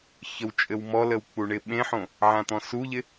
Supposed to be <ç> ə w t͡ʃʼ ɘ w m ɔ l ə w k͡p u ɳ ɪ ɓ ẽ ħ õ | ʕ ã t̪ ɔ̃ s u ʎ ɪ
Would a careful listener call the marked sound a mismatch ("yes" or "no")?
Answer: no